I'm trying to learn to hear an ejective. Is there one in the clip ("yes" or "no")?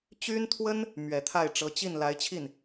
no